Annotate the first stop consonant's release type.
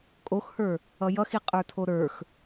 ejective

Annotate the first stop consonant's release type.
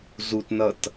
plain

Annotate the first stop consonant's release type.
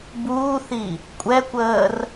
plain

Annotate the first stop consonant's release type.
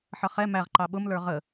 click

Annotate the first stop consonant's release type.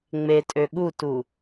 ejective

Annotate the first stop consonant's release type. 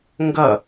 plain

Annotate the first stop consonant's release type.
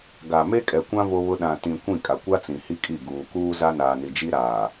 plain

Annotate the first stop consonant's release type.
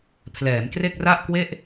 aspirated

